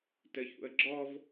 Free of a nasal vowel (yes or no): yes